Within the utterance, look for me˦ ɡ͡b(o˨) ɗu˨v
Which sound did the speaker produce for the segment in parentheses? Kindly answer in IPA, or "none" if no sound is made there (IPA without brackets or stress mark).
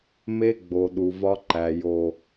o˨